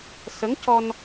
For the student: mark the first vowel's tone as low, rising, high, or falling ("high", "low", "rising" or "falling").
rising